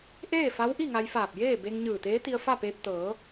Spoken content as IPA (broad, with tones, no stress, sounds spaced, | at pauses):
ʔ eː˥˨ f a˧˥ w ʔ i˥˨ ŋ a˧ j f aː˧˩ p̚ j eː˥˨ b e˧ ŋ ɲ ɯː˧˩ t̪ eː˧˥ t̪ i˧ ə̯ f a˥˨ p eː˧ p̚ t̪ ɤː˩˧